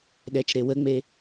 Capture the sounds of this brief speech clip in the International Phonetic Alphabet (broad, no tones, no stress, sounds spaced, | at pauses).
ɗ ɛ t͡ʃ ɾ e w ə ŋ͡m e